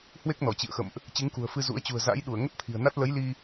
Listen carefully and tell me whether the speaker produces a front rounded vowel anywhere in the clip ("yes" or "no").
no